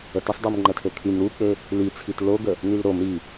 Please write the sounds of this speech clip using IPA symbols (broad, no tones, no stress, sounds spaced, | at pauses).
ə t ə sˤ dˤ u m ŋ͡ǃ ə tʰ ø kʰ y m ɾ u k͡p ø | l i t͡sʰ i t l o ɡ ə | n y l ɾ o m ɾ i